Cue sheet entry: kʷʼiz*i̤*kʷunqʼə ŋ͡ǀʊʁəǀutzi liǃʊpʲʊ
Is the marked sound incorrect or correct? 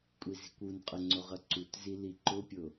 correct